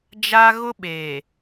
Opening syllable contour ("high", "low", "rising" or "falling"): high